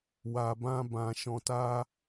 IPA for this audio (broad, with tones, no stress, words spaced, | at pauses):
wa˨bã˧bã˨ ʃɔ̃˨ta˧